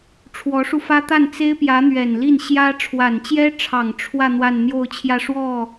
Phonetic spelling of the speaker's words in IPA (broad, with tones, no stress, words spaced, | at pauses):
ʈ͡ʂʰwɔ˧˥ʂu˧fä˥ t̪a˥˩nt͡se˥ɪ̯pjä˧˥ n̪ɥɛ˨˩nli˥˩n ɕjä˥ ʈ͡ʂʰwa˨˩nt͡ɕjɛ˥ʈ͡ʂʰɑ˨˩ŋ ʈ͡ʂʰwä˥˧ n̪wa˥˧nn̪jo˥˧ʊ̯t͡ɕʰjä˥˧ ʂwɔ˥˩